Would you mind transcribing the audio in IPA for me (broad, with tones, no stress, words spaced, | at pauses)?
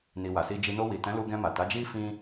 ni˨wa˨si˧d͡ʒi˧ no˧wi˨tɛ̃˨˦lu˧ ɡɛ̃˧ma˨ta˨˦d͡ʒi˦ fĩ˦